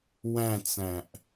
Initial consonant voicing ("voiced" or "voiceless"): voiced